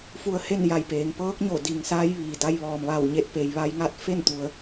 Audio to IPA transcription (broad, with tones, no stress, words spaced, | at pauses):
fu˧ə̯he˥˨n ja˧˩jpeː˩ŋpɤː˧˥k̚ɲo˧˩ di˩ŋsaː˧˥j ʋiː˩da˧j ʋɔː˩mʋa˧˩wɲe˧˩t̚pe˩j ʋa˧jŋa˥˨t̚ fe˥˨nt̪u˩˧ə̯